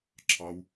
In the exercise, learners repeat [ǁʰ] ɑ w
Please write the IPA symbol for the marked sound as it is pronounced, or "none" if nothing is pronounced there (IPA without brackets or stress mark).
ǁʰ